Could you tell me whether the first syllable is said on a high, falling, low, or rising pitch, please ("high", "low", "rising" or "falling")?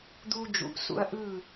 high